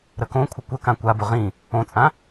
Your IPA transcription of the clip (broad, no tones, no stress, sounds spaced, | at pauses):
ɾ ə k õ kʷʰ ə kʷ ə k ã kʷ a b ʊ ʁ ĩ | õ t͡sʼ ã